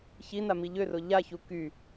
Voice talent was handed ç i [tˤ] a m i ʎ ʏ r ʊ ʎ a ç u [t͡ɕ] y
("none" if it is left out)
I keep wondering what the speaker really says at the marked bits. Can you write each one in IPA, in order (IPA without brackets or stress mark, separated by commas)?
n, k